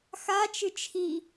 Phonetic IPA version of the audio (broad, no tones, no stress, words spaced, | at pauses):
xat͡ʃɨ t͡ʃʰi